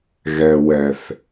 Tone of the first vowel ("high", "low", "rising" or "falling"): low